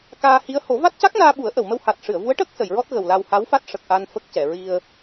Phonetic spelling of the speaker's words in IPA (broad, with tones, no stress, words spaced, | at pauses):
kaː˧hi˧˥ə̯ ho˨˩˦va˦˥t̚ ca˦˥k̚naː˧ ɓu˨˩˦ə̯ʔə˨˩˨wmə˧w ha˨˩t̚ʂɨ˨˩˨ə̯vu˧˥ə̯ʈəː˦˥k̚ sə˨˩˨jɹɔ˦˥t̚ ɣə˨˩wla˧w ha˧˥wfa˦˥t̚ ʂə˨˩k̚ʔa˧n fə˦˥k̚cɛ˨˩˨ ɹi˧ə̯